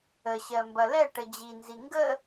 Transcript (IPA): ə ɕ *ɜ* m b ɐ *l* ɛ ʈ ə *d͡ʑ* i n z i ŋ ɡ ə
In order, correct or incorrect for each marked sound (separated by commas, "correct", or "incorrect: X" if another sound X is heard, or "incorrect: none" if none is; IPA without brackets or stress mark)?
correct, correct, correct